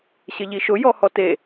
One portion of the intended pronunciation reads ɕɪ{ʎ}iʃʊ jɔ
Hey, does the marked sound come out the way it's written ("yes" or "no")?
yes